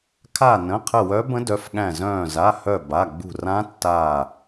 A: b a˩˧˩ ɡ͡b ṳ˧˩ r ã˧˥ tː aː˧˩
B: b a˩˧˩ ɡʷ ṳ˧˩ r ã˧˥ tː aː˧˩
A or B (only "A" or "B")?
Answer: A